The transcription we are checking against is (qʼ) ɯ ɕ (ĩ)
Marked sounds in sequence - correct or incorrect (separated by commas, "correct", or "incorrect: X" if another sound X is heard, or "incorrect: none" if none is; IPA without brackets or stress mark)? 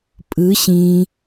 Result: incorrect: pʼ, correct